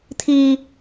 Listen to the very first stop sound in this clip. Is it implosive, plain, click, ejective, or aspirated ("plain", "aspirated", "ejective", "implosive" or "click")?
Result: aspirated